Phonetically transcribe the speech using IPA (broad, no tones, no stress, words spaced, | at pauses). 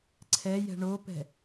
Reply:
ǀʰɛjɛ̤ ɳopɛ̤